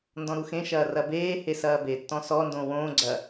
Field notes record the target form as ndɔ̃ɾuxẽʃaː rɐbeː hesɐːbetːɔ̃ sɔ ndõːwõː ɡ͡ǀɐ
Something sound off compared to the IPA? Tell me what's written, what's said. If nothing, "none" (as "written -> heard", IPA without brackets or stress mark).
aː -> ɐː